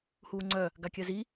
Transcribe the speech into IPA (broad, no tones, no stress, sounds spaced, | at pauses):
h uː ŋ͡ǀ œ | ɡ a kʲ œ z i